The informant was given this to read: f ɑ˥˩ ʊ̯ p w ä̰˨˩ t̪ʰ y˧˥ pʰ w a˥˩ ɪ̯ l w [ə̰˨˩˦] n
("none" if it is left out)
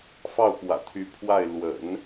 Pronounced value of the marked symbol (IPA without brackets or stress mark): ə̰˨˩˦